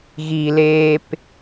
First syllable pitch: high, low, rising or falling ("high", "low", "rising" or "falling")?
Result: low